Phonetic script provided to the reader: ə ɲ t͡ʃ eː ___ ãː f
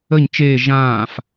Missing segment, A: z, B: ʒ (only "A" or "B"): B